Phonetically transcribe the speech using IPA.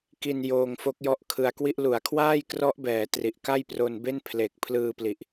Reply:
ki˧n joː˧ŋfo˦˥k̚ jɔ˦˥ʔkʰɯ˧a̯kwi˥˩ʔ lu˩˦a̯kʰwaː˥˩jkrɔ˦˥ʔ bɛː˩˦ tri˨˩ʔka˥˩jpro˧nbe˥˩n pʰle˨˩k̚ pʰlɯː˧pli˨˩ʔ

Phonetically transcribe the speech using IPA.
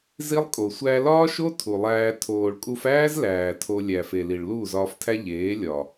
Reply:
zi˦lˠkʼo˨ sʷæ˧lɒː˦ʃo˦ tʰu˨lˠæː˧ tʰoː˨ɭkʼu˧fæː˦z læː˨tʰo˧ lʲæ˨fe˨li˨ɭ luː˦˨zɒː˧ftʰæ˦ ʎeː˨˦ lʲɒ˨

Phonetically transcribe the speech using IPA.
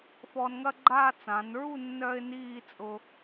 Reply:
fɔː˧nŋɐ˥ɡ͡ǃaː˥˧ t͡sã˩˧nɹu˥˧ nːœː˥ɪ̯niː˥˧ t͡sʼʊ˧

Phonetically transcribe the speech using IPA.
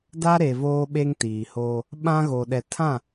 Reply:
da˦ɾe˨ voː˦ɓe˦ŋtiː˨hoː˦ | ɓã˦ɣo˨ ɗɛ˨tʰã˦˨

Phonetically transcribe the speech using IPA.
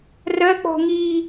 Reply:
rɜk͡pɔ̤ ŋi

